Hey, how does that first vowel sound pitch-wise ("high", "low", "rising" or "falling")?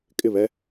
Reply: falling